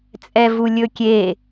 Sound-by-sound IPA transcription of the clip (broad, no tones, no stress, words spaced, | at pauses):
t͡sʼɛvulʲɵkʲe